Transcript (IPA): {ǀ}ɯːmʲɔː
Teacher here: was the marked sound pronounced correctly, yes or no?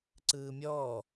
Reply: yes